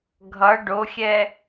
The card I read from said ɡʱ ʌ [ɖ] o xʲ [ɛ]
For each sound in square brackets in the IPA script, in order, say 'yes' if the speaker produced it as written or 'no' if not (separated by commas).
yes, yes